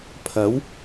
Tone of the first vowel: rising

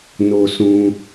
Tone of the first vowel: low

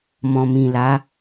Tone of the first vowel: low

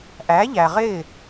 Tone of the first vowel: rising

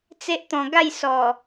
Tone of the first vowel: high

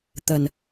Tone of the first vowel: low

